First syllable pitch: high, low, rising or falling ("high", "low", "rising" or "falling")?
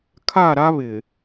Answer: falling